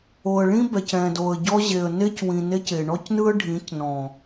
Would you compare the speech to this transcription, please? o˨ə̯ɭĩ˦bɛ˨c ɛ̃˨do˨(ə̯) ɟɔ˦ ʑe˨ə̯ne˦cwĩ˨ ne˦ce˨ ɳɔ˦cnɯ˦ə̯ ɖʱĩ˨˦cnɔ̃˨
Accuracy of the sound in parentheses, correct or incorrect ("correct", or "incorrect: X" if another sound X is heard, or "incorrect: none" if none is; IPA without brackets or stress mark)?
correct